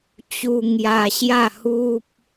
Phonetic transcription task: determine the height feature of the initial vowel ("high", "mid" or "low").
high